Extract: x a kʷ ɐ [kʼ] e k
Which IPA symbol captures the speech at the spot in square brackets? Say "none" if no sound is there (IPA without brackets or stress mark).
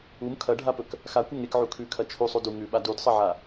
ŋ